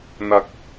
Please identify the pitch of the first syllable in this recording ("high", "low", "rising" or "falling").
high